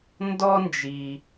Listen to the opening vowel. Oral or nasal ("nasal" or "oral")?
oral